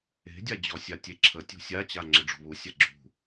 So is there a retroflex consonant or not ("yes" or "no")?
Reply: yes